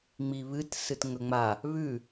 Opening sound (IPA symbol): ŋ͡m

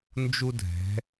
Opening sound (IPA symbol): n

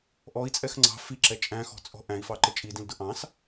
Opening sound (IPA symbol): ʔ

